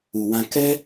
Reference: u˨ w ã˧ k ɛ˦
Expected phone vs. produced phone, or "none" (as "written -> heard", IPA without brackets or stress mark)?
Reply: none